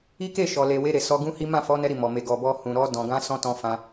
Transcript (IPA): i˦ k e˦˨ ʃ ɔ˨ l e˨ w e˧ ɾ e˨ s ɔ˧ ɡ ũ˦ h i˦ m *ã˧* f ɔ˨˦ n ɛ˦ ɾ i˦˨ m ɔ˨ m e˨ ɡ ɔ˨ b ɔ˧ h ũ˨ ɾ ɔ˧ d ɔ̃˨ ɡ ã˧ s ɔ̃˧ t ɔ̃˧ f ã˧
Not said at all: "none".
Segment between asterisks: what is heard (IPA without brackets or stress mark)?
ã˦˨